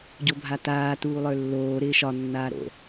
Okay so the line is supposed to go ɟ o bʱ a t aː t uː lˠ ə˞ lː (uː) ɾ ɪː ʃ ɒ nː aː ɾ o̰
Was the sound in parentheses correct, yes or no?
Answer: no